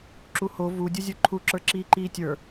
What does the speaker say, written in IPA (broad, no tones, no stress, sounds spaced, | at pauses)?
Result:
ǁ u h o v u dʲ u zʲ ə˞ ǃʰ u ǁ ə˞ ǁ iː ǃ iː tʲ ə˞